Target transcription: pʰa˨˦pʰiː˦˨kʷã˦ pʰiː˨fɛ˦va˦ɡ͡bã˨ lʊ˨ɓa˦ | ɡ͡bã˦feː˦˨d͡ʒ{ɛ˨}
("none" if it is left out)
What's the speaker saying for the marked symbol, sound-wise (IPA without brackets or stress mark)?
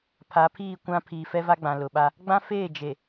e˨